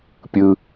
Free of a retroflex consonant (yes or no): yes